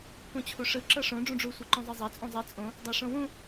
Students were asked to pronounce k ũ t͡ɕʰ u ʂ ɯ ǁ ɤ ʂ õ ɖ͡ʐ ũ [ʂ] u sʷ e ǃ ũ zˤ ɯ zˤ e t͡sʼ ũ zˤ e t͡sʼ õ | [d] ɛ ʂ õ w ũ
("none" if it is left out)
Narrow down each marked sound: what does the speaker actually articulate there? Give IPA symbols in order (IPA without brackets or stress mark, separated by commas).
ɖ͡ʐ, dˤ